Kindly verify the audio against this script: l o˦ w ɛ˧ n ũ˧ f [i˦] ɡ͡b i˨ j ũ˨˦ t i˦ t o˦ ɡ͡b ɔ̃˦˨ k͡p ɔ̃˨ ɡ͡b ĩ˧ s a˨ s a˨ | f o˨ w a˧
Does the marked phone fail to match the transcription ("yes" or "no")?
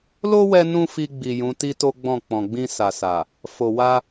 yes